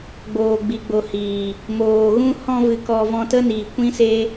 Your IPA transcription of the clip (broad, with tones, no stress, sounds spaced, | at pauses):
ɡ͡b oː˨ ɡ͡b i˨ ɡ͡b o˨ h iː˨ | m oː˨ ɣ ũ˦ h ɔ̃˧ v ɨ˨ k ɔ˨ v ɔ̃˧ t ə˦ n iː˨ kʷ ĩ˦ s e˦